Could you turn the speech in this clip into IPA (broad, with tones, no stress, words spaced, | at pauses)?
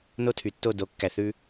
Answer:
no˦tʰy˨tːo˦˨ do˨˦kːæ˨ θʉ˦